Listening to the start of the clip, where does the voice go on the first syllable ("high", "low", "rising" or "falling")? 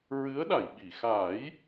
rising